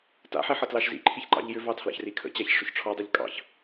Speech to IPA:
ta̰ħi ħʌtlɑʃzḭǃʰiç ǃɑ̰ʎjʏvɑ tʰlɑ̰çrikʰə̰t͡ɕaç ʂʏçʈ͡ʂʰɔdˤʉʎ kʼɑ̰ç

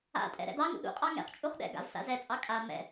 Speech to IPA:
a̰tʼɛ̰ ɾɛ̰dɑŋṵ ɗṵqʼɑ ŋɛ̰χ t͡ʃʼuχɗɛ̰ɡa̰v sa̰zɛt͡sʼɑ kʼa mɛ̰

